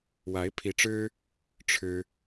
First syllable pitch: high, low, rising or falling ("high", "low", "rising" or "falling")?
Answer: rising